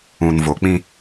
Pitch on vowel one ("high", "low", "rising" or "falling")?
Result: low